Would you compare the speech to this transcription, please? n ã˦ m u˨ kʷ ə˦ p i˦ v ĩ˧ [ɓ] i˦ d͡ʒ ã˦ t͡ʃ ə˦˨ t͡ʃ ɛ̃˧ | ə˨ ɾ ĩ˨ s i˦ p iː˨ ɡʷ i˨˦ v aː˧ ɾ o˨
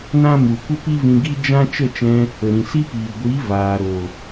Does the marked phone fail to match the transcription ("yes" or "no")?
yes